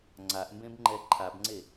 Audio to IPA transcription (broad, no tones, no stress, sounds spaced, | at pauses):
ŋ͡ǀ a ʔ m b ẽ b ŋ͡ǃ ɛ ǃʰ a b ŋ͡ǀ e